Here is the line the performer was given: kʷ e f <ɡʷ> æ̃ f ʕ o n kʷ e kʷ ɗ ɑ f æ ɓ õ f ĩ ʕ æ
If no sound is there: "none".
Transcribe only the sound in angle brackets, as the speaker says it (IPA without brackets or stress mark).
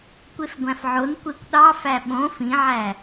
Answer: ɡʷ